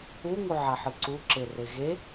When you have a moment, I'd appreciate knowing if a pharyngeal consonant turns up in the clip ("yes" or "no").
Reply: yes